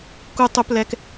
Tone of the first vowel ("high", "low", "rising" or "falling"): high